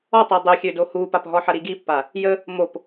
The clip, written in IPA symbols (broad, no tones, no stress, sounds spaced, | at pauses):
ɔ tˤ i dˤ ø xʲ ø d o h u p a p ɦ ɔ ħ ɐ ɾ i ɡ i pː a | j ə | m o p